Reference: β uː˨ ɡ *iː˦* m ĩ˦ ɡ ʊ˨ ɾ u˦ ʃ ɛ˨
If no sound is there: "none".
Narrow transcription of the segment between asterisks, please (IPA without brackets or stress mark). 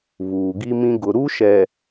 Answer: i˦